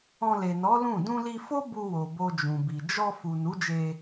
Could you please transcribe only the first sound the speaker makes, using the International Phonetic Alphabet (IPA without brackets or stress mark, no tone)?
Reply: ɔ̃